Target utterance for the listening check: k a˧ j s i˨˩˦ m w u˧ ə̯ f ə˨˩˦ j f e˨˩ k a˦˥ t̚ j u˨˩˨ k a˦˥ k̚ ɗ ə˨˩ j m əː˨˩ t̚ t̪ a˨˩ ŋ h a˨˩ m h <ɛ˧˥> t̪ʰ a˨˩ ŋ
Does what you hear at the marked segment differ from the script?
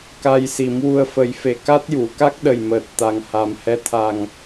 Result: no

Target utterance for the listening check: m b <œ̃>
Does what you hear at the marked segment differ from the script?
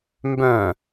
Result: no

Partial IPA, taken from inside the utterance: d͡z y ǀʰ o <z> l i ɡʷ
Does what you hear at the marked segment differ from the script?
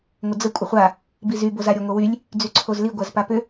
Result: no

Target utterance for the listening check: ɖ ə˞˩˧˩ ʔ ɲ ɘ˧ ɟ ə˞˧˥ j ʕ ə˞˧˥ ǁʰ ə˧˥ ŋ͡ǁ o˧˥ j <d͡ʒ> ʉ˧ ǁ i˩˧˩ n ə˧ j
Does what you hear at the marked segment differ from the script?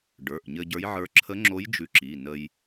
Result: no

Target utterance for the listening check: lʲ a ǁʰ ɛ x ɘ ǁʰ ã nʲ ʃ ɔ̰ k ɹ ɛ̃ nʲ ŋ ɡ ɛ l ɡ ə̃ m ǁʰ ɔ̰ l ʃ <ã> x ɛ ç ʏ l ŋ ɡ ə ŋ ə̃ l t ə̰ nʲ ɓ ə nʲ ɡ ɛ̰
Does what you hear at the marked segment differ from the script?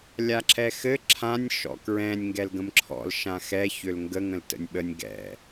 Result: no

